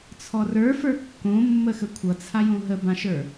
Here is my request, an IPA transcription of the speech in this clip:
t͡sʰ ɔ r ə˞ f ə˞ kː õ mː ə x ə kʷʰ ʌ t͡sʰ a j õ ɦ ə b ã ʃ ə˞

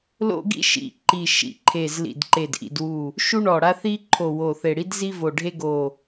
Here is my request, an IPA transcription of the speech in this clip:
l o̰˥ ɡ ḭ˥ ʃ ḭ˧˩ ǃ i˧˩ ʃ ḭ˧˩ ǃʰ e˧˩ z l ḭ˧˩ d ǃ e˧˩ d ʔ ḭ˧˩ d w u˧˩ | ʃ u˥ ɳ ɔ˧˩ ɽ a˥ θ i˥ ǃʰ o˧˩ w o˧˩ θ e˧˩ ɽ i˥ d z i˥ v o˧˩ ɖʱ e˥ ɡ o˧˩

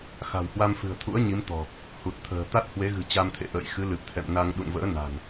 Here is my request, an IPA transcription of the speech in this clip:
x a̤˨˩ w h w a˧ m f ɨ̤˨˩ ə̯ t̪ʰ ṵ˧˥ ə̯ ɲ i˨˦ m t̪ ɔ̤˨˩ | h u˨˩ t̚ t̪ʰ ə̤ː˨˩ t̪ a˦˥ t̚ h w e˨˦ ɣ ɨ̤˨˩ t͡ɕ a˧ m t̪ʰ ḛ˧˨ ʔ ə̰ː˧˨ j x ɨ˨˦ l ɨ˨˩ p̚ t̪ʰ ɛ̰˧˨ m n a˧ ŋ ɗ ṵ˧˨ n v ə̰ː˧˥ n a̤˨˩ n

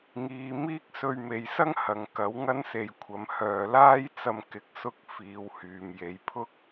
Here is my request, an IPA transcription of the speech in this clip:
ŋ iː˧ m iː˥ k̚ s ɵ˧ ɥ m e˨˧ j s ɐ˥ ŋ h ɐ˨ ŋ k ɐ˨˥ w ŋ ɐ˥ n s e˧ j kʷʰ ɐ˨ m h œː˨ l aː˥ j t͡s ɐ˧ m k ɪ˨˥ k̚ s ʊ˥ k̚ f iː˨˧ w h yː˨ m j e˨˧ j pʰ ʊ˥ k̚

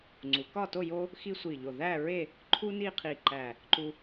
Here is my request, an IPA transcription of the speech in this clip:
ŋ͡ǀ u˩˧ k ɒ˥˧ t o˥˧ j o˥ | x i˥ sʷ i˧˩ ʎ o˧˩ ð æ˥˧ ɹ e˥˧ | ǃʰ u˥ n i˥˧ qʰ i˧˩ ǃ æ˧˩ | ǃ u˧

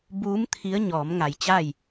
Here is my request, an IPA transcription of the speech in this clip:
b uː˧˥ m t̪ʰ i˧˥ ə̯ ɲ ɔː˩˧ m ŋ a˧˩ j t͡ɕ aː˥˨ j

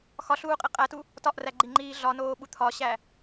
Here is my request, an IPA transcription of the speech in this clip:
x ɒ ɬ uː qʼ i qʼ æ t u | t ɒ ʔ r æ ɡ͡ǃ i ŋ͡ǃ iː ɮ ɒ n oː ɓ u t̪ʰ ɒ ɕ æ

